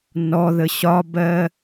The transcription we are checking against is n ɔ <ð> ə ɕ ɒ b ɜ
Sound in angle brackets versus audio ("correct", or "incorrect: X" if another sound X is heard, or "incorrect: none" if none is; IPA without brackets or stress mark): correct